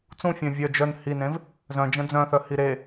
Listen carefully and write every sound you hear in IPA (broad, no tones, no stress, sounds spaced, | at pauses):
t͡s ũ fʲ œ̃ vʲ œ d͡ʒ œ n h i n ẽ v | z œ̃ d͡ʒ ə̃ d͡z œ̃ θ œ h i ɾ e